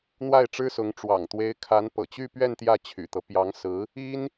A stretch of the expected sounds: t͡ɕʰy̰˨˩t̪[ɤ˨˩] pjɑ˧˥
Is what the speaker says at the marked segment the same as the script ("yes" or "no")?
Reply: no